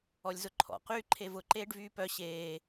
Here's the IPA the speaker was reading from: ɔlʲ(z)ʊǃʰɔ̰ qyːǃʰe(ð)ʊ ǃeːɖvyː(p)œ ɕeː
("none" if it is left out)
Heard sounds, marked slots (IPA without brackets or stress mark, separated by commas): z, v, p